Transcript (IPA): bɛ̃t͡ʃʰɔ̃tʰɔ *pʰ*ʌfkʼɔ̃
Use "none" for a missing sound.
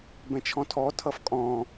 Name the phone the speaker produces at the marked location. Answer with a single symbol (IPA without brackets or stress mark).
tʰ